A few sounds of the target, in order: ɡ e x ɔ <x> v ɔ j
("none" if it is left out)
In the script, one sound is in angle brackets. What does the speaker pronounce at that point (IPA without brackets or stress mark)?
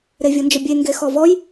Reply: none